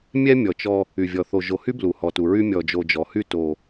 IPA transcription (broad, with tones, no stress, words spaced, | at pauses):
mʲɛ˦ mʲɔ˨t͡ʃɔ˦ | y˨vʲɔ˨ θo˨ʒo˨hy˦ blu˨hɔ˨tu˨ɹy˦ mʲɔ˨d͡ʒo˨d͡ʒɔ˨hy˦ to˦